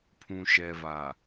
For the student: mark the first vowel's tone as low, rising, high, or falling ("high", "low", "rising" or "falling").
low